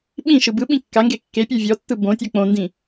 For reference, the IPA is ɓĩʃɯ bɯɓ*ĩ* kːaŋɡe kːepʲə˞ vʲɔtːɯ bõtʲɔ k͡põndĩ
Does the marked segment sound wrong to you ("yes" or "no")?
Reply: no